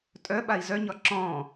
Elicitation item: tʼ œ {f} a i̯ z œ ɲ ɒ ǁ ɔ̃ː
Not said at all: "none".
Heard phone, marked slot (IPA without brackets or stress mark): ɓ